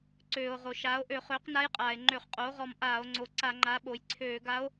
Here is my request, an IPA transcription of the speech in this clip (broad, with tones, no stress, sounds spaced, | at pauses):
ǀ øː˩ o̯ ʁ o˩ ʃ aː˩˥ o̯ ʔ ø˧˩˧ χ øː˩˥ q n a˧˥ j qʼ aː˩ e̯ ŋ͡ǃ ø˧˩˧ χ qʼ oː˩˥ ʁ ɔ˧˩ m ʔ aː˧˩˧ o̯ ŋ͡ǀ o˩˥ ǀ a˧˩˧ ŋ͡ǃ a˩˥ ɓ o˩ j ǀʰ øː˧˩˧ ɡ a˧˥ o̯